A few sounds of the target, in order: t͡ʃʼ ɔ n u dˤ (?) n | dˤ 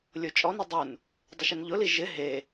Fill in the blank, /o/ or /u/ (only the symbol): u